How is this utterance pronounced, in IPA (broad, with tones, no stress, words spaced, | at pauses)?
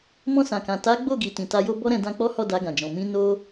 mɔ̃˧sã˨kã˨ ta˨˦ ɡ͡bo˦˨ɡi˨tĩ˨ ta˧jo˦bɔ˦ɾɛ̃˧ dã˧k͡pɔ˦hɔ˦˨ da˧ɡã˨d͡ʒɔ̃˨ mĩ˧ no˦